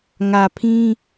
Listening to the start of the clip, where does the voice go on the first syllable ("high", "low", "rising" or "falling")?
low